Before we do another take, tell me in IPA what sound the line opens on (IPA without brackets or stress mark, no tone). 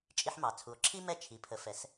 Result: t͡ʃʼ